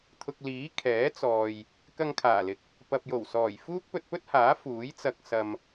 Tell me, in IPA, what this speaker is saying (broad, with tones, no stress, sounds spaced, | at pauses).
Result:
t̪ʰ ʊ˨ k̚ l iː˨˥ kʰ ɛː˨˥ t͡s ɔː˨ j | k ɐ˧ ŋ kʰ aː˨˩ l ɪ˨ k̚ | p ɐ˨ p̚ j o˨˩ w s ɔː˨˩ j f uː˥ k̚ p ɵ˧ t̚ p ɵ˥ t̚ h aː˨˥ f uː˨˥ j t͡s ɐ˧ k̚ s ɐ˧ m